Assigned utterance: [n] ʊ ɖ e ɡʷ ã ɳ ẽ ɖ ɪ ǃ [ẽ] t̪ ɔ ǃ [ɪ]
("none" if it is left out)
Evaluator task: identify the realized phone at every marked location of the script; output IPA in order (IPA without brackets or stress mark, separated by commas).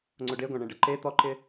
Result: ŋ͡ǀ, e, ɪ